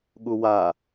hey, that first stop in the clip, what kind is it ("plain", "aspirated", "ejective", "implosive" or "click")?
implosive